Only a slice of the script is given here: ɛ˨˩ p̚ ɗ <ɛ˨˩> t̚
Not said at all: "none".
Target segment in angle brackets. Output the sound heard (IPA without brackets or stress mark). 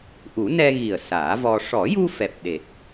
e˨˩